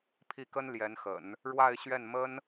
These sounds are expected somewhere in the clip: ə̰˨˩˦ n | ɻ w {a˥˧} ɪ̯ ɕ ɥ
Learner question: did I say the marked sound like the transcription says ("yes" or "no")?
yes